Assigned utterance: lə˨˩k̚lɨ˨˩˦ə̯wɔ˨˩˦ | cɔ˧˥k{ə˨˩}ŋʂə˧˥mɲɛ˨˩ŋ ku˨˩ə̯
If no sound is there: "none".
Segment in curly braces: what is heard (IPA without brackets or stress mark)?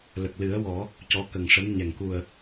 ə˨˩